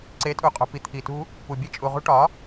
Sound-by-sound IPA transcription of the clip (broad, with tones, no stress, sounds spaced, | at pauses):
ǀ e˨˦ tʼ u˨ qʼ o̤˨ p i˨ t̪ʰ i˨ t ṳ˦ | p u˨ bʲ e˧ t͡ʃʼ u˨ ʁ ṳ˧ ʈ ɒ˨˦